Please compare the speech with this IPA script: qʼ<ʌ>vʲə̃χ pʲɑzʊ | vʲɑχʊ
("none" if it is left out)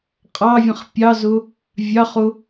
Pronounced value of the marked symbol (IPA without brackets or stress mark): ɑ